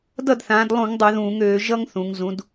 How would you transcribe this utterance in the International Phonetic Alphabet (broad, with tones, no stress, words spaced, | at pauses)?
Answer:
dʌ˥˩dθãː˩˧dlˠũ˧˩˧ŋ dˤu˧˩˧ðũː˧˩˧ŋøː˩˧ ʒʌ˥ŋθũ˩˧ŋ zũ˩˧d